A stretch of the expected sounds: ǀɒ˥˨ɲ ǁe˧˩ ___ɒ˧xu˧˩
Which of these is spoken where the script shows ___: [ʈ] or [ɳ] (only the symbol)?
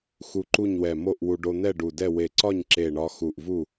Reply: ɳ